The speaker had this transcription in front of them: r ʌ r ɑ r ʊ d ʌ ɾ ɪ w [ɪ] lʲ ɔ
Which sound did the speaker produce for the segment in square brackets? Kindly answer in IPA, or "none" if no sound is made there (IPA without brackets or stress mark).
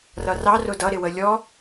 ə